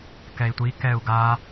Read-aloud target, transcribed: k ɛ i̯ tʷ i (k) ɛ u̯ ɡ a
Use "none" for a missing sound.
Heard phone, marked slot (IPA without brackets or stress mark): k